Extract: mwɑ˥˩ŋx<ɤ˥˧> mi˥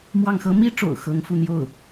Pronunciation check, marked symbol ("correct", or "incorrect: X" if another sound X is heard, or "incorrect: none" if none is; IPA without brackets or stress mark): incorrect: ɤ˥